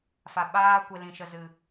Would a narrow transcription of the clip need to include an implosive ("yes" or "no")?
yes